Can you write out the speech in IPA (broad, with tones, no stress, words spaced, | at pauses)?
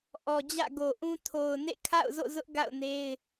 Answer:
ʔɔ˨d͡ʑä̰˦˨ɡo˨ʔũ˦ tʰo˨ʊ̯nḛ˦˨kʰa̰˦˨ʊ̯zo̰˦˨ zʊ˦ʔ ɡa̰˦˨ʊ̯ne˦ɪ̯